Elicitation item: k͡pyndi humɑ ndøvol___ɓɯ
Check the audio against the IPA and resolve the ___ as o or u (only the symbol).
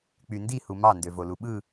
u